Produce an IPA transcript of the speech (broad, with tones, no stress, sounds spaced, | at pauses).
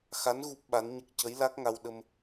x a˧˥ n ɣ u˦˥ p̚ ɓ a˧˥ n ɲ ə˦˥ k̚ c ə˧˥ j l a˦˥ k̚ ŋ a˧ w ɗ ə˧ m